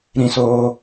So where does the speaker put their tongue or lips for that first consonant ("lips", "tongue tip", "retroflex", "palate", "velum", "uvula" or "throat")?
tongue tip